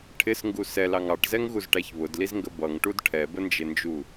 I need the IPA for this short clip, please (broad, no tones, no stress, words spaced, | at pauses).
ʈʰɪsŋɡu sɛlɑŋ ɑʈzɛŋɣuzʈæç βʊdlizŋɡə bʌŋʈud ʈʰɛbənd͡ʒɪnd͡ʒu